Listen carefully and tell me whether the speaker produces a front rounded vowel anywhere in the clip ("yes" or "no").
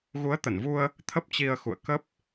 no